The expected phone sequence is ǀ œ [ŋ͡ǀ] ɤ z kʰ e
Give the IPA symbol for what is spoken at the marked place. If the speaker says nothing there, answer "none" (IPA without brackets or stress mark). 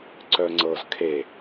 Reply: ŋ͡ǀ